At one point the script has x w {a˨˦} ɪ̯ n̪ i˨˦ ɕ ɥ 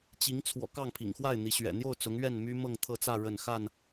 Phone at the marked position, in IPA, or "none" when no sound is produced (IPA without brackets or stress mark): a˥˨